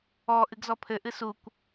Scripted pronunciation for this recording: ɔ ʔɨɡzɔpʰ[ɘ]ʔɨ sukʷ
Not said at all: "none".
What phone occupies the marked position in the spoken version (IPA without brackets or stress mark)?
ɘ